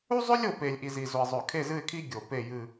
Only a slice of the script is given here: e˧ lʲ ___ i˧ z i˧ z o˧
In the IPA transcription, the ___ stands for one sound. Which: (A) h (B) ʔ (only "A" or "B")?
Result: B